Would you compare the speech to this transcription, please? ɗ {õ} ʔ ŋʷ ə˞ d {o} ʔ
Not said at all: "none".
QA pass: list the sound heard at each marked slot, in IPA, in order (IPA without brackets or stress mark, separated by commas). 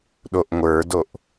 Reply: o, o